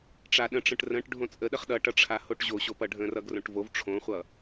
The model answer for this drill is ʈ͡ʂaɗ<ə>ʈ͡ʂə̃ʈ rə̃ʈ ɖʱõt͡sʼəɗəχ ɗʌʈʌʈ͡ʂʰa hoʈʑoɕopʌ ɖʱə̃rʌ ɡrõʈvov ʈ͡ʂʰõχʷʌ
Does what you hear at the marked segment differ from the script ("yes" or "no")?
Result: yes